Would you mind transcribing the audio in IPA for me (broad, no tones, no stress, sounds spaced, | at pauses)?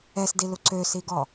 ɛ s d i l u ǀ ø s i ɡ ɔ